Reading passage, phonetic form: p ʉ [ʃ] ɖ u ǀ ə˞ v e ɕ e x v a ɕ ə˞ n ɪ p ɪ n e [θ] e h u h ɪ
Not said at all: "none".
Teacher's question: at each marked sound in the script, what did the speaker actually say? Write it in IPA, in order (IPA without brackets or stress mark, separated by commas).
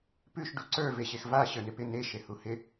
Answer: ʃ, ʃ